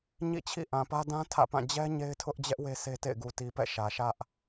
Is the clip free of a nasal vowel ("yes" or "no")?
no